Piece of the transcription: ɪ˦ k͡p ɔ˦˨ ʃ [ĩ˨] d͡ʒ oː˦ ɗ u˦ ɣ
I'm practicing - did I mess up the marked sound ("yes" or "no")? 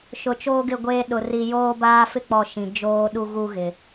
no